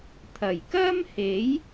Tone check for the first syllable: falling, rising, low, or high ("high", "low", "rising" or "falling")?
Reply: low